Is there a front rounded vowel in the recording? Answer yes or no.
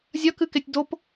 no